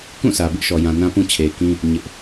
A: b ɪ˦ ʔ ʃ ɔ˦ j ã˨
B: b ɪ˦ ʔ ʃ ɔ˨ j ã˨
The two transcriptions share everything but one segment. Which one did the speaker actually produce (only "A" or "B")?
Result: B